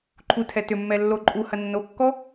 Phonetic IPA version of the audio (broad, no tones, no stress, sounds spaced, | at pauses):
ǃʰ u tʰ ɛ t ʏ mː ɛ lː o ǃʼ u h ɐ nː o kː ɔ